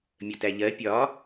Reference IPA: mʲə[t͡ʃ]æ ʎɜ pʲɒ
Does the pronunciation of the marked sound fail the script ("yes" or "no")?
yes